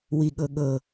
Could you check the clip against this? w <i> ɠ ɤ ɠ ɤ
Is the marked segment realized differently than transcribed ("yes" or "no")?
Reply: no